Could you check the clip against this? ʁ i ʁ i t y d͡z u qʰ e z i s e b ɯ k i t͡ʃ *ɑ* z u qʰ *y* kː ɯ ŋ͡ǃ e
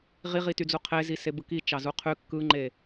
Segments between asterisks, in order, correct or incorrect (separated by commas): correct, correct